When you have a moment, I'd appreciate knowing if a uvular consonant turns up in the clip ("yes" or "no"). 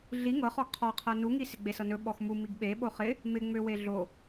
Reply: yes